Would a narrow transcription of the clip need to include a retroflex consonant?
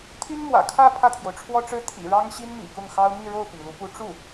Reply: yes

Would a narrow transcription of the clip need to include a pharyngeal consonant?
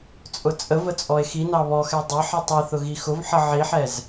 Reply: yes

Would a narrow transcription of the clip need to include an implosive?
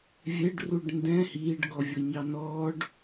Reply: no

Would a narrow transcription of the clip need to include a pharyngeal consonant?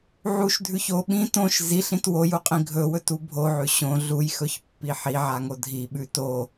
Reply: yes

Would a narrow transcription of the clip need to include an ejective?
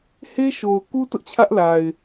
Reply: no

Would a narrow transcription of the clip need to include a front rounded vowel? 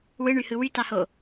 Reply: yes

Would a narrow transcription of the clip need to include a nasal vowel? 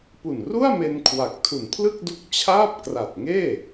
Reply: no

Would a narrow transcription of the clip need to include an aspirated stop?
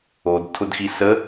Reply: yes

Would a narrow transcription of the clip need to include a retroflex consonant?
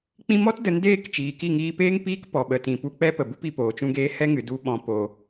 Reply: no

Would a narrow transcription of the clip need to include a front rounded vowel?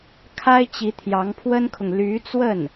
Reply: yes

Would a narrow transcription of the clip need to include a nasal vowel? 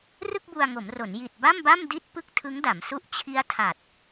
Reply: no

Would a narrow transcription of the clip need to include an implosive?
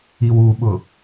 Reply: yes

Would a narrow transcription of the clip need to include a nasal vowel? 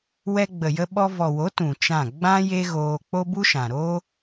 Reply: yes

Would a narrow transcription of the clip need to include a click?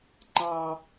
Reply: yes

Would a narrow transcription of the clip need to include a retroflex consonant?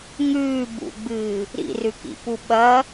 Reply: no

